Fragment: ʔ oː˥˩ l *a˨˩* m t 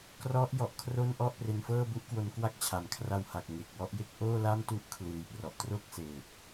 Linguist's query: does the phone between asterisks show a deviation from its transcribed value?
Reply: yes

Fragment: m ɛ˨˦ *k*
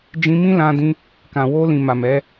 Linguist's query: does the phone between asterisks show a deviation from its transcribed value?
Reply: yes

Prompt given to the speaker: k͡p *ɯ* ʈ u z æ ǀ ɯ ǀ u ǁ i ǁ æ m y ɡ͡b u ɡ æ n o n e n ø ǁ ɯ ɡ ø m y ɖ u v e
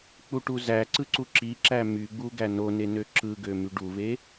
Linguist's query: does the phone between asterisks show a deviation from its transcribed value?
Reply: yes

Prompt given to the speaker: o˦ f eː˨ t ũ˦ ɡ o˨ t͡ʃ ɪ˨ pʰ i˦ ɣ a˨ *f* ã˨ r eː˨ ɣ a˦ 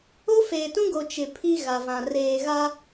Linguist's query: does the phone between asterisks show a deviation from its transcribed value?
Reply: yes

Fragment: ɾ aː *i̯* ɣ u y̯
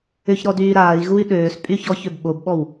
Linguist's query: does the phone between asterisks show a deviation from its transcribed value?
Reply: no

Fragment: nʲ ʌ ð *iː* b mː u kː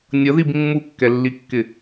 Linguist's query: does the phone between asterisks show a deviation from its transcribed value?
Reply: yes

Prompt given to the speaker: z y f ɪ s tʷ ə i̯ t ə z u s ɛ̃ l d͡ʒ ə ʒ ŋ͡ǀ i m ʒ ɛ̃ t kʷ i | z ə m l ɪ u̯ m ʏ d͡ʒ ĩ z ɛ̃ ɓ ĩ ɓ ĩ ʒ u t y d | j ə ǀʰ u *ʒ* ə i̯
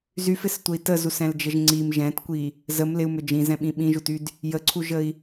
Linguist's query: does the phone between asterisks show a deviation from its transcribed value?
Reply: no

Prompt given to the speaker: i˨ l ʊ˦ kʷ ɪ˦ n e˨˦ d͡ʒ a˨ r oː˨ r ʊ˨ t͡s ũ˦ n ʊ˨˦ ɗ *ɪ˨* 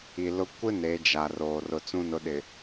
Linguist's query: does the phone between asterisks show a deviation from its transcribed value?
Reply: no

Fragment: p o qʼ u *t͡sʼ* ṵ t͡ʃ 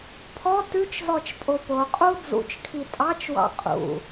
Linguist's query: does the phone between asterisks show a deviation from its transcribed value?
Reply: yes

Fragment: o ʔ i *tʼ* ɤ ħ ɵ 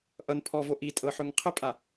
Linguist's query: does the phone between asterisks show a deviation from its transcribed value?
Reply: no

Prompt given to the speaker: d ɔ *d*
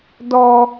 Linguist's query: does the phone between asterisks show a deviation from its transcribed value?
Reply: yes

